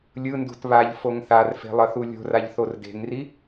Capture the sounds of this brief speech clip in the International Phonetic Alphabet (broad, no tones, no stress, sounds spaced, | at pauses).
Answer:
lʲ ɯ n d ṳ t β a ʎ f o ŋ θ a r f e̤ lˠ ʌ θ u lʲ o̤ r a ʎ θ o r d e̤ ŋ r i